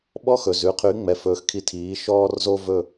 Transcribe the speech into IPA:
ɓɔ˥xɵ˩z ʉ˩˥qʰy˩˥ŋ͡mɛ˩ fɵː˩˥xkʰi˧tʰiː˩˥ ʃɔː˥rzo˥vɵ˥˩

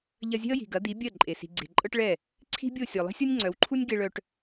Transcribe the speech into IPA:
ʎɐ˧zʲe̤˦ə̯ji̤˨ ɡɐ˨˦d̪i˨˦ bʲɜ˦˨ǃʼe˨ si̤˨ɡ͡ǀe̤˨ ǃʼɤ˦ʈɭɛ˦˨ | ǀʰi̤˦bʲo˦˨ sʲɔ˨lˠi̤˦sʲo˦nʲ ŋ͡ǀœ˨˦wǃʰu˦nʲ ɡe˧ ɭœ˧ʈ

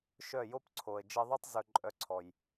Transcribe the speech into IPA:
ʃœ˦˨jo˦pǀʰo˨ə̯ d͡ʒi˧ðˤy˦tˤ zɵ˧ǃʼœ˧ǀʰɔ˨j

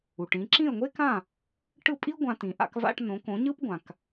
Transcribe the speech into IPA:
u˩ʈĩ˩˥ ǁĩ˥˩ə̯ŋʷe˥kã˥˩ | ʈɯ˥˩pʼi˥ ɡʷã˧tĩ˩ ʔa̰˧kva̰˧ʈ nõ˩˥kõ˩˥ ɲɯ˥pɡʷã˩k

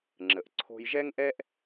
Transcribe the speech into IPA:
ŋ͡ǁə˩ʔ ǀʰo̤˧jʒɛ˥ŋʔɛ˥ʔ

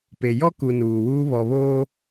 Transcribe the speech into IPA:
pe˨ jɔ˦ku˨ nuː˨wuː˦ βɔ˨βoː˦

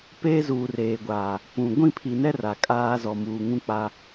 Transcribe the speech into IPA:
peː˦zuː˨reː˨ɡʷaː˨ | pũ˨ ɡʷĩ˦˨pʰi˨nɛ˦ ra˨kʼaː˦ zɔ˨muː˨ŋũ˦ k͡pa˦

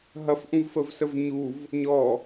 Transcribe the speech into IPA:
ɦɐfʔũvfəvsəv ɲuv | ɲɔ

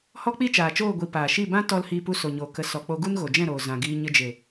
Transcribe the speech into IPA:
hɔ˦k͡pi˦t͡ʃaː˨t͡ʃoː˦˨ ɡʷi˧ paː˨ʃi˦˨bã˦ tɔ˦l hiː˧pu˧so˨ɲoː˨ kə˧ sɔ˨k͡po˧ ɡu˦nɣo˨d͡ʒɛ̃˦˨ɾoː˨ zã˨ɡiː˧ ɲə˧d͡ʒe˨

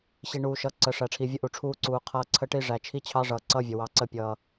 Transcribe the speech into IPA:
ɕi˨ ɳuː˨ʃʌ˨ ǀə˨ ʂæ˨ʈ͡ʂʰi˨vʲə˦ ʔu˨ʈ͡ʂʰuː˦ǀuː˨qʰʌː˦ ǀʰə˦ʈi˦ʐæ˨ t͡ʃʰi˦t͡ɕʰɑ˦ʐʌː˨ ǀʌ˦vʲə˨ wɑ˨ǀə˦˨pʲʌː˨

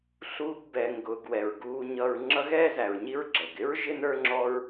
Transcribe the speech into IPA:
ɬuː˦ɡ bɛː˨ŋɡʊː˨ɡwɛ˩ɹ ɡuː˨ɲʌ˨ɹ ŋ͡ǁʌ˦ɣɛː˥zæ˩ɹɲi˦ɹ ɡ͡ǁɛ˩ɡɪ˥ɹ ʒɪ˥ nə˞˥ŋ͡ǁɔ˦ɹ

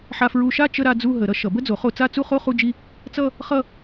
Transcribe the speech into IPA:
ħa˧fɹu˧ʃa˥˧ t͡ʃə˥˧ɾa˥˧ d͡zu˥˧ɦə˨˩˦ ɾʌ˧ʃʌ˨˩˦bə˥˧d͡zo˨˩˦ χo˥˧ t͡sa˥˧t͡su˥˧χo˥˧ χu˥˧d͡ʒi˥˧ | t͡sʌ˥˧ | χʌ˥˧

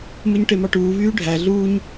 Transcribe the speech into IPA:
mɯɲʈemɑʈuː vyːɖʱæ ɮuːɲ

